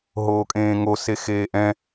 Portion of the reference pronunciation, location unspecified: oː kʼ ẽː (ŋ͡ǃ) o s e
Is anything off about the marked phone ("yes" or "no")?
yes